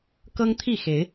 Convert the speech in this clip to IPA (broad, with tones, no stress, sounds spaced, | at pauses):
k ɤ˦ ŋ t̪ʰ i˥˨ x e˨˦ ɪ̯